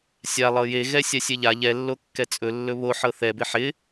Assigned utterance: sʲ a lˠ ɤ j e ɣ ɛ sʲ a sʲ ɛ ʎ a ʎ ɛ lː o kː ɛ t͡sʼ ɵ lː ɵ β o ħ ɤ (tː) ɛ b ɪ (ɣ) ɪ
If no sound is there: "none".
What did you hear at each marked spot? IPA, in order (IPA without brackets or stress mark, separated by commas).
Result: θ, ħ